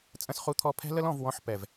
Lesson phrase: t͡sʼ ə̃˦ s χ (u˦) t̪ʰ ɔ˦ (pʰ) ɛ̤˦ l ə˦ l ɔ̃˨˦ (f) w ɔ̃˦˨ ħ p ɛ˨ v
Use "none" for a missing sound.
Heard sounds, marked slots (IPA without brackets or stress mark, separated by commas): u˦, pʰ, v